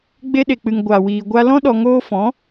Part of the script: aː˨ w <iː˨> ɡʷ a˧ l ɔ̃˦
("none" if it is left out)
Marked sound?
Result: iː˨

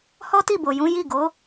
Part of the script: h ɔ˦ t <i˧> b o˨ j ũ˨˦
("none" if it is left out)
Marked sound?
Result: i˦˨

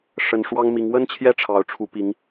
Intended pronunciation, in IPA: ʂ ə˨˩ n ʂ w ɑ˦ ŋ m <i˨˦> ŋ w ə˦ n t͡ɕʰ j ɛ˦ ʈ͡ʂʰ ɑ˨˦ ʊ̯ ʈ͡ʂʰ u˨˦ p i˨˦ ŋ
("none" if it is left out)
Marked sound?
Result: i˨˦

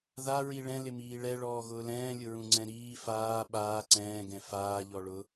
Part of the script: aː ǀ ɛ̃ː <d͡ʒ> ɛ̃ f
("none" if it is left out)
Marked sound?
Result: ɡ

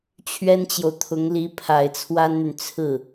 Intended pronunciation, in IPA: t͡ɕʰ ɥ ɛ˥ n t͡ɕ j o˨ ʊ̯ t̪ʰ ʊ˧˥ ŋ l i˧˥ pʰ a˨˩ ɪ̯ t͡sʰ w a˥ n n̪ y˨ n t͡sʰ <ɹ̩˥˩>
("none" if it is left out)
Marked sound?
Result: ɹ̩˥˩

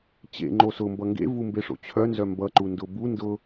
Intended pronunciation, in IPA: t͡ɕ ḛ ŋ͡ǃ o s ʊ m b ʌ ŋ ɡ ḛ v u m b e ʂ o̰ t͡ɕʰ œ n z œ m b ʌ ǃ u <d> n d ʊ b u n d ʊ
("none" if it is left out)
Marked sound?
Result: none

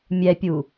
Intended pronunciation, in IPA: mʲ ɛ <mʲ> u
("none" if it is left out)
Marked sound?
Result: pʲ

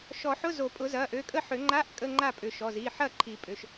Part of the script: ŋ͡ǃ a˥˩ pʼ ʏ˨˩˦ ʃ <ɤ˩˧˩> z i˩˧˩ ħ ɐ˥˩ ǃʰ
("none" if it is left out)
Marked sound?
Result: ɔ˩˧˩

